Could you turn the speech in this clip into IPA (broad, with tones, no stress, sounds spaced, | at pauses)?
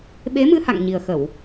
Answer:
ɓ e˨˦ m ɨ˧ h a̰˧˨ ŋ ɲ i˨˩ ə̯ x ə˧˩˨ w